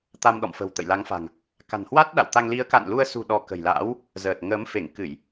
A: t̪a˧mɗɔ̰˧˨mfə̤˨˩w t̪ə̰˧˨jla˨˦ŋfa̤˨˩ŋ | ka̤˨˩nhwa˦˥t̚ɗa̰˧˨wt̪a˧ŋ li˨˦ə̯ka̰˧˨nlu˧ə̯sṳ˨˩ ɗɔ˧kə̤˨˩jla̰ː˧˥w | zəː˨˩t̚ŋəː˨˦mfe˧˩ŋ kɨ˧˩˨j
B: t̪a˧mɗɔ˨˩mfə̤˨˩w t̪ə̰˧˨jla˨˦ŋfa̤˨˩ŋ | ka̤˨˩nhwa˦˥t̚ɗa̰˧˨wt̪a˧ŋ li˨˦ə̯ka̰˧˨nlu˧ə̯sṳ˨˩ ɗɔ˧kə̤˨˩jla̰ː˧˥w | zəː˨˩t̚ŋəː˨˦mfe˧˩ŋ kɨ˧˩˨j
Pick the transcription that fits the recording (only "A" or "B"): A